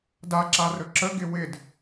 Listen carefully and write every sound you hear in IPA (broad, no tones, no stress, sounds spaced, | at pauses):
d a ǁ a r ɵ ǁ ə ɡ ɪ w ɪ d